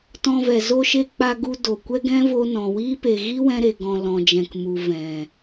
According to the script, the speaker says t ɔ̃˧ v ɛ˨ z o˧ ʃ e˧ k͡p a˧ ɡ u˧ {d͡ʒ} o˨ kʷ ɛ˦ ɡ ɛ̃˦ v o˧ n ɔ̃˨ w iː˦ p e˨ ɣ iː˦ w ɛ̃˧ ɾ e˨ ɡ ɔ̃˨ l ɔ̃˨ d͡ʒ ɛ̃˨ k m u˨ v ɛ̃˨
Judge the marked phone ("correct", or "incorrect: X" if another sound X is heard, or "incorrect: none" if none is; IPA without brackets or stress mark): incorrect: d